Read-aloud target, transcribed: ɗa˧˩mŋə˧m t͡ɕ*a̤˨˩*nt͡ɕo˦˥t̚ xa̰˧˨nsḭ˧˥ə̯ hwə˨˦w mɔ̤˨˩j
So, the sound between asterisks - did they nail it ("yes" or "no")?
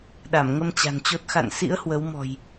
yes